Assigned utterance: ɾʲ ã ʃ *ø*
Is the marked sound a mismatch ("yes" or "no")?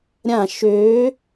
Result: yes